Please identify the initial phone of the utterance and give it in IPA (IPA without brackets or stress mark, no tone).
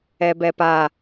ɛ